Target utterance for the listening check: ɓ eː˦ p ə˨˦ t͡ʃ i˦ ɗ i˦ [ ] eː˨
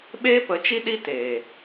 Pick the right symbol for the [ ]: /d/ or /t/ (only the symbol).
t